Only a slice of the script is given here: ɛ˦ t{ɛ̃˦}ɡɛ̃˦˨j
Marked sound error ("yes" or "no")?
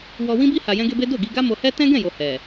no